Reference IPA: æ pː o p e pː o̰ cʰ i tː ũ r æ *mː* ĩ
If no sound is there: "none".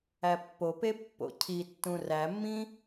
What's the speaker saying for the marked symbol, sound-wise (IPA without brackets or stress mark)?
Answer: mː